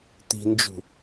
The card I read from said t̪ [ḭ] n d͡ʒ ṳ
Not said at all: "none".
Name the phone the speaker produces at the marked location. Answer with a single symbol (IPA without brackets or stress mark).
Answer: i̤